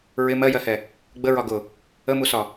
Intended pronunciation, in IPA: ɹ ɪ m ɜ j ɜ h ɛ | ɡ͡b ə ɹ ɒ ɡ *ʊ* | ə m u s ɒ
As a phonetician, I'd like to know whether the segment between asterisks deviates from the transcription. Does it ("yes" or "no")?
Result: no